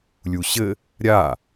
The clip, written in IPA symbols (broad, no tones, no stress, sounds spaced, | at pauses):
lʲ u ɕ ɘ | ɾʲ a